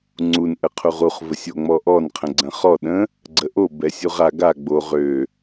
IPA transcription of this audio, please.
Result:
ŋ͡ǀ u n ʔ ə qʰ u ʁ u χ v ə sʲ o ŋ͡m ɔ ʔ ɔ n qʰ ə̃ ɡ͡ǀ ə̃ χ ɔ ɗ ə̃ | ɡ͡ǀ ə ʔ o b ɛ sʲ u ʁ a ɡ a ɡ͡b o ʁ ø

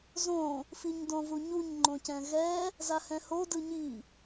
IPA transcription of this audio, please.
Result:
z õ | f i ɲ d õ v u ɲ u ɲ ŋ͡ǃ õ c ɛ̃ ɣ ɛ | z a h ɛ̃ h o d ɯ ɲ i

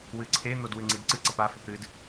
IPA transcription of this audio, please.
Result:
w ɨ ǀʰ e n̪ o d w ʉ ŋ͡ǀ i d ǀ ɨ ǀ ɐ p a f ʉ p ɾ ɨ d

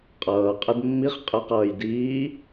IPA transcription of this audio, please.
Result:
qʼ ʌː qʼ ə d mː i χ qʼ ə q ʌː j d iː

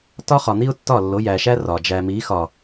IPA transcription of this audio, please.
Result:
t ɒ˦ χ ɒ˨ n̪ i˦ ʊ̯ tː ɒ˦˨ lː o˨˦ j æ˨ ʃ æ˦ r ɒ˨ d͡ʒ æ˨ m i˨˦ x ɒ˨

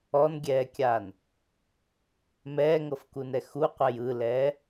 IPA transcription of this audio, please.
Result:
ɔ n ɡʲ ɛː kʲ aː n | m ɛː ŋ ɤ f k u n ɛ x u qʷ ɛ j ɯ l ɛː

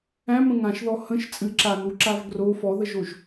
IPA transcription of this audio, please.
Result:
æ̃ m ə̃ ŋ ã ʃ ð ɔ h ə̃ ʃ t͡sʼ ɨ ǁ a n u ǁ a v ɡ r o f ɔ ð ə ʒ o ʒ

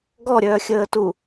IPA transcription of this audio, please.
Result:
ɡ ɔ ɾʲ œː xʲ əː t u

